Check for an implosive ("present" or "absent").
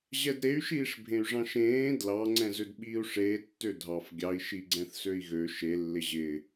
present